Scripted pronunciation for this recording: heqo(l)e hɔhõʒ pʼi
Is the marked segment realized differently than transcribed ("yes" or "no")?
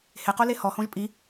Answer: no